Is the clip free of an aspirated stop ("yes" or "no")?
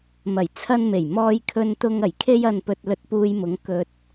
no